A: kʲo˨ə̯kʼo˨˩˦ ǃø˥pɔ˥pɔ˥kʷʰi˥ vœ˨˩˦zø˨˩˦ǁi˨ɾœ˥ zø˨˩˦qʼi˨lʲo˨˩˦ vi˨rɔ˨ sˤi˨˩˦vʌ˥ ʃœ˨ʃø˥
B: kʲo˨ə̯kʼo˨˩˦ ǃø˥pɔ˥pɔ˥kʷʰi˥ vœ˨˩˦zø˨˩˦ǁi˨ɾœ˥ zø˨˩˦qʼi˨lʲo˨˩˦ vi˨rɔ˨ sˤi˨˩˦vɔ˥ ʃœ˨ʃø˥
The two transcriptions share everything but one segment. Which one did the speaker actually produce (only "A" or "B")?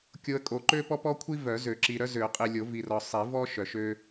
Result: B